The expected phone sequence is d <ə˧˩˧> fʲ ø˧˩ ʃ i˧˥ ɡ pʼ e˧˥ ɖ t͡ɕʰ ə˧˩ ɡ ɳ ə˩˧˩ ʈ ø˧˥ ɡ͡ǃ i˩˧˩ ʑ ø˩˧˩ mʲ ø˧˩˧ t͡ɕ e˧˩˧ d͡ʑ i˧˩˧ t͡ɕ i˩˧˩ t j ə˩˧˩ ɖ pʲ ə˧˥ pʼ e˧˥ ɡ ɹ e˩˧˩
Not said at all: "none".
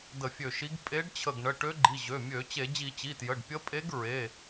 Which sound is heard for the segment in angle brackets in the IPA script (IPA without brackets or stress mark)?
ə˧˩˧